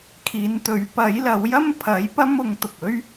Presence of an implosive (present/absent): absent